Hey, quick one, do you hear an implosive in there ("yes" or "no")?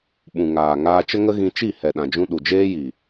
yes